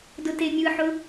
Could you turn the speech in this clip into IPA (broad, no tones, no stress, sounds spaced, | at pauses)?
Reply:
d ʊ t e mʲ ɯ ħ ʊ